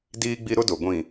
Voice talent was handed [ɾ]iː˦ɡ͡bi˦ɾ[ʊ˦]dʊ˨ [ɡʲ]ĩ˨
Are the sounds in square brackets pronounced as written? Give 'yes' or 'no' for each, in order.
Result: no, yes, no

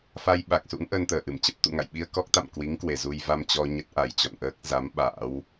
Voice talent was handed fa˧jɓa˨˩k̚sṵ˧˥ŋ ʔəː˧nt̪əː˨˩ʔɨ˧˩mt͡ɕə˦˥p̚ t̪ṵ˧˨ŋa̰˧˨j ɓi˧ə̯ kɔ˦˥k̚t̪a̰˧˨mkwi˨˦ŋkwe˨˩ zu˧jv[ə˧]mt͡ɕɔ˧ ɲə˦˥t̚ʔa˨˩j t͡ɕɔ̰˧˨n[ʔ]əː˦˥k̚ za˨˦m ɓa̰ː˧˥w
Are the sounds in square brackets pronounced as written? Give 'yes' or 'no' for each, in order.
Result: no, yes

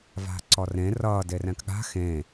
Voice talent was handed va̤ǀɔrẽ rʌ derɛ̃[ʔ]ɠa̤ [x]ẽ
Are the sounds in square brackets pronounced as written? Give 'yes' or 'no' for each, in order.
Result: no, yes

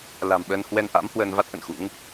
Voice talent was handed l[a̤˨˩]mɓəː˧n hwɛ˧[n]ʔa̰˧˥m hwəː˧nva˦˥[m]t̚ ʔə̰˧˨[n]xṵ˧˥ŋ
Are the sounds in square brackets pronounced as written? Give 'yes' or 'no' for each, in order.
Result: yes, yes, no, yes

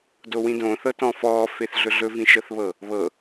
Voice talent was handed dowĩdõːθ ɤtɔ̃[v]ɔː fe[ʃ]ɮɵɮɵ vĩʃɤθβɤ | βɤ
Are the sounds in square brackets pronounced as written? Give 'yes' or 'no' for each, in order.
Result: no, no

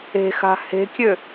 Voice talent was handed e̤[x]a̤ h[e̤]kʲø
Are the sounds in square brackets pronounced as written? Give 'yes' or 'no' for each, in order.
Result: yes, yes

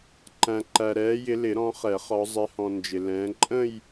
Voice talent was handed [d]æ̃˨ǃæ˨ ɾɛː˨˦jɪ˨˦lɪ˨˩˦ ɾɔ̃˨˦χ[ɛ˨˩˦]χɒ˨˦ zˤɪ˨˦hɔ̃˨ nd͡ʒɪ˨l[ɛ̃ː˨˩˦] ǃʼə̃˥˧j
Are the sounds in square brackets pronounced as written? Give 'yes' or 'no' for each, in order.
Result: no, yes, no

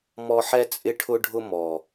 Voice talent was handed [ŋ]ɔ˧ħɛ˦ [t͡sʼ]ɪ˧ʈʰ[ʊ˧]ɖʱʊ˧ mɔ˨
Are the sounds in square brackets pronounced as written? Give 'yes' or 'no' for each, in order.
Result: no, yes, yes

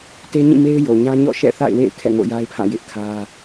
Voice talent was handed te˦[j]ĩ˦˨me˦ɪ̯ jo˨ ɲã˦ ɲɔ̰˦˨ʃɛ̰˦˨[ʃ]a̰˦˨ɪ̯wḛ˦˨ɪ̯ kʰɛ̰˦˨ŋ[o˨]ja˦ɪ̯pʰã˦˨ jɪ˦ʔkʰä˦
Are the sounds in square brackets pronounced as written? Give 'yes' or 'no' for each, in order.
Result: no, no, no

